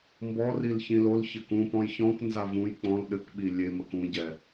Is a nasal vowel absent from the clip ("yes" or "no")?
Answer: no